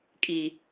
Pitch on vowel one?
low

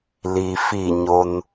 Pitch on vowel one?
low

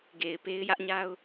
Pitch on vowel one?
low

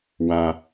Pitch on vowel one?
low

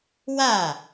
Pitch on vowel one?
falling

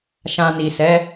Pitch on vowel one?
low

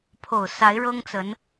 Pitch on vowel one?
low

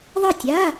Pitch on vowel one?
falling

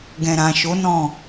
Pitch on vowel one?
low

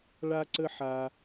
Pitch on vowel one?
high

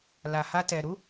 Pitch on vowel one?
low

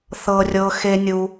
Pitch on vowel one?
low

